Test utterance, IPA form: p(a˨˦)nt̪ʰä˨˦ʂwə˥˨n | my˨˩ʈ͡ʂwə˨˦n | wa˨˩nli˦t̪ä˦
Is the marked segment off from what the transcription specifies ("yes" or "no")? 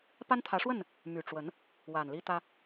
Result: yes